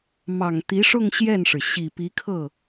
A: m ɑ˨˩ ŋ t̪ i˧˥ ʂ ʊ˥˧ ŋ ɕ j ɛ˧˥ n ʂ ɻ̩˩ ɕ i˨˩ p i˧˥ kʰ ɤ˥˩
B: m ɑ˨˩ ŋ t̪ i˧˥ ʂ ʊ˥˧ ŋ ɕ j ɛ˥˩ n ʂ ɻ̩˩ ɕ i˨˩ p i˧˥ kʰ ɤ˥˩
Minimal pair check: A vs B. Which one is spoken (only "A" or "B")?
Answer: B